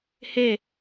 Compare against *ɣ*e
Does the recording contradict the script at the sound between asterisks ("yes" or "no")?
yes